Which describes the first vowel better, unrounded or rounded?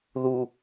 rounded